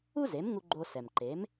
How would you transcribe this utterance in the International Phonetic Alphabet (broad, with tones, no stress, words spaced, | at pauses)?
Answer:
u˥ze˩˥mŋu˧ ɡ͡ǃo˧ sɛ˩mǃe˩˥m